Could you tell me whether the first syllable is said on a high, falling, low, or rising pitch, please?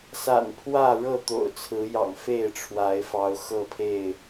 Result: low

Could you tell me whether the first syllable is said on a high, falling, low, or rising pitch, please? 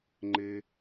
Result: high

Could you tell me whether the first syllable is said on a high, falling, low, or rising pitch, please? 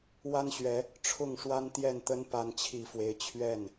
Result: high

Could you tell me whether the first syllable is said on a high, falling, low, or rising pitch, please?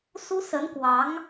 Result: high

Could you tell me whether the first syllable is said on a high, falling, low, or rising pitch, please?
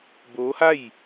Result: rising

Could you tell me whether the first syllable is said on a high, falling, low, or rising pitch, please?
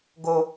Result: high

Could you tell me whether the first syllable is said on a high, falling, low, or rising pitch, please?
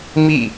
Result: falling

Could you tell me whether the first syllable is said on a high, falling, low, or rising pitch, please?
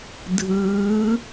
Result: rising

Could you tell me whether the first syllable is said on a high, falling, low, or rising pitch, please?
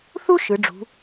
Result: high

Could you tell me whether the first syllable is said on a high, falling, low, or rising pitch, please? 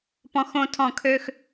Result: high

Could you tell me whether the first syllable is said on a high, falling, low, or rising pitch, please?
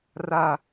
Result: falling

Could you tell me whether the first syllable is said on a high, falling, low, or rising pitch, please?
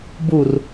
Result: low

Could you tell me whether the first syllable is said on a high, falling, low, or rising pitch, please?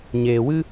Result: low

